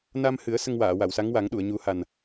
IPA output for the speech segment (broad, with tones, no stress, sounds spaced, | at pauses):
n a˧ m h ɨ˨˩˦ ə̯ s ə˧ ŋ w aː˨˩˨ w a˨˩˨ w s a˧˥ ŋ w a˨˩˦ ŋ ɗ u˨˩˨ ə̯ ɲ u˨˩˦ h a˨˩ n